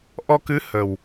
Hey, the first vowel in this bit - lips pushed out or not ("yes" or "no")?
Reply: yes